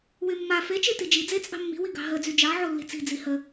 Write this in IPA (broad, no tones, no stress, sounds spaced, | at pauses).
w y mː a f e t͡ʃ e t i d͡ʒ i d͡z e t͡sʼ ɑ̤ mː i̤ w i ɡ ɑ̤ ɦ ə d͡z y d͡ʒ ɑ ʕ o lː i̤ t͡s i̤ d͡z i h ə